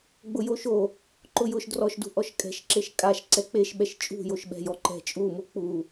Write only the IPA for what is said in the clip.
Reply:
ɡ͡bʊjoʃo | ǃʊjʊʃ drɔʃdṳ ʔɔʃkʼɛ̤ʃ ǁeʃkʼaʃ ǀɛk͡peʃɓɛʃ t͡ʃʼṳjoʃ ɓɛ̤jɔǃɛ̤ t͡ʃʼumu k͡pu

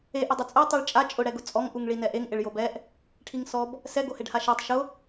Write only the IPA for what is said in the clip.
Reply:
eʔ ʊdˤʊt͡sʼo tˤiɭt͡ʃʼa t͡ʃʼʊ ɽɛɡʊt͡sʼɔŋ ʔuŋɭinɛʔeŋ ʔɪɭjobɛʔ | ʈʰiŋsɔb | sɛ ɡoheɖhaʃɛtˤ ʃʊ

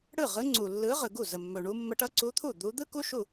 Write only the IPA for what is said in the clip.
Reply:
ɽɯ˥˩ʁɯ˧˥ ŋ͡ǀu˨lːɯ˧˥ʁɯ˨ɡu˥˩ zə˨mːɵ˨ɳu˧˥ mːə˧˥ʈʌ˧˥ǀu˧˥t̪ʰu˥˩ d̪u˧˥ d̪ɯ˥ ku˥ʃu˥˩

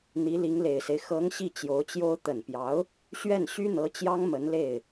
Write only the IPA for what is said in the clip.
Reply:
n̪i˧˥li˧˥ŋle˨˩ɪ̯se˦ɪ̯ xɤ˧˥ŋ ɕi˥˩t͡ɕjo˧˥ʊ̯t͡ɕjo˥ʊ̯ t̪ə˨˩npjɑ˧˥ʊ̯ | ɕɥɛ˥˩n ɕy˥n̪ɤ˧˥t͡ɕjɑ˥ŋ mə˧˥nle˥˩ɪ̯

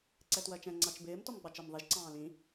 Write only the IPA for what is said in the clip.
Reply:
ǀɛtwɜt͡ʃɛ̃ ŋ͡ǀɑt͡ʃbɪːm tɔmɡ͡bɑt͡ʃɜmðˤiʒ ǀɑ̃ːlĩ

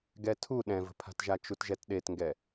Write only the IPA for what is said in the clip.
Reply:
ɡɛtʰu ɗɛ̃və̤pʰa̤tʒa t͡ʃutʒɛtɗetŋɡɛ

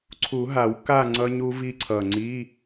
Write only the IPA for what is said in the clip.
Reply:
ǀʰu˨˩˦ɦa˨˩˦w ka˥˨ ŋ͡ǀʌ˦˥ɲu˦˥ vi˦˥ǀʰʌ˨˩ ŋ͡ǀi˧˥˧

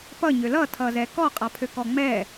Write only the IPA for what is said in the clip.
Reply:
pʌɲø lʌtʰʌzɛ kɔqʼapʰøkɔ ŋ͡mɛ

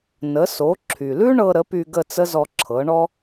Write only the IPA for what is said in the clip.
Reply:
nə˩˥so˩˥ ǁʰy˩lʉ˥ɳɤ˧ ɾə˩˥py˧ ɡə˥˩t͡sə˥zɔ˧ ǁʰɤ˩˥ɳɔ˥

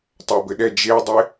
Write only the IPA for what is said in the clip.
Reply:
tˤabɘɗɛ d͡ʒedˤe

